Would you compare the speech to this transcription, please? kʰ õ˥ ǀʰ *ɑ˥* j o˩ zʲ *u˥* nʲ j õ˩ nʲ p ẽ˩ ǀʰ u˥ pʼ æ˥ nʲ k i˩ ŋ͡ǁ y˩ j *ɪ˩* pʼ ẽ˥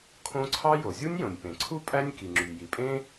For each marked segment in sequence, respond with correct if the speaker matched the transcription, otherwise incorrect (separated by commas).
correct, correct, incorrect